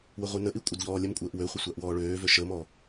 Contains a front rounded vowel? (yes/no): yes